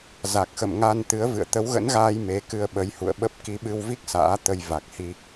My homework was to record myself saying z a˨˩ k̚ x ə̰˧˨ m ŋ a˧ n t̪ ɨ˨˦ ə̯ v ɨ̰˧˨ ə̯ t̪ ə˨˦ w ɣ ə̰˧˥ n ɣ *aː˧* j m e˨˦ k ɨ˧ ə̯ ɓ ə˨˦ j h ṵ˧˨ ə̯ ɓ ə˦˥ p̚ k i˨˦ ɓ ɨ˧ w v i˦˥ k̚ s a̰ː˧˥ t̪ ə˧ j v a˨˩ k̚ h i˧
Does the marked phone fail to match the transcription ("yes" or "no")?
no